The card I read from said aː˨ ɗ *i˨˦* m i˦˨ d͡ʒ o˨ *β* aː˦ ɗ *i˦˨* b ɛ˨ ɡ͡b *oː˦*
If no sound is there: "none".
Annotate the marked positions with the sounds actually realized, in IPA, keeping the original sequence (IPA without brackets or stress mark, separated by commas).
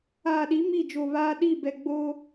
i˨˦, β, i˦˨, oː˦